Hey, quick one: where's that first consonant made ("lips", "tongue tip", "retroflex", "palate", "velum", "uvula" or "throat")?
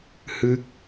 throat